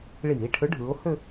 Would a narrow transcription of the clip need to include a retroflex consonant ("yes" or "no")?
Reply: yes